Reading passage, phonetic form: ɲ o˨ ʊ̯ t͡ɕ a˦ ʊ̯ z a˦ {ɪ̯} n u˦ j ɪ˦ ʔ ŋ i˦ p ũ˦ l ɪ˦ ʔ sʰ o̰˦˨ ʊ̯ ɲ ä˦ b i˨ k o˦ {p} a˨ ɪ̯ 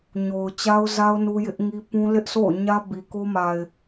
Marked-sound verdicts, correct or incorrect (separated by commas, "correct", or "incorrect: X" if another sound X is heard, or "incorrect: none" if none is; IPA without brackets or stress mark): incorrect: ʊ̯, incorrect: m